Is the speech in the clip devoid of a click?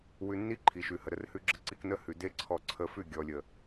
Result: no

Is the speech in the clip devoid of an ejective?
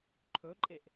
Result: no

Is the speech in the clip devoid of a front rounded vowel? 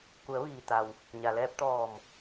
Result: yes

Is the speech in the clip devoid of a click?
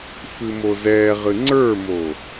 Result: no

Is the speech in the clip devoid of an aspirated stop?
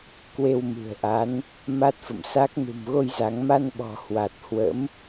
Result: yes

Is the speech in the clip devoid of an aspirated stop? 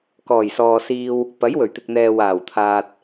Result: no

